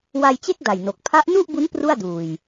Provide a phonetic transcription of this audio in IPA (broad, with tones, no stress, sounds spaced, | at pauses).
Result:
w a˧ j t͡ɕ e˥˩ k̚ d a˨˩ j n o˨˩ k̚ pʰ a˦˥ ʔ n u˥˩ ʔ b u˦˥ n p r u˥˩ a̯ d uː˨˩ j